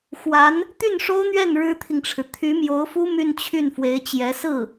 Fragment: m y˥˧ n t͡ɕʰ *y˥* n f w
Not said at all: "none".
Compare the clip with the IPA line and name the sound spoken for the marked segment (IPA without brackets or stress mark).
y˥˩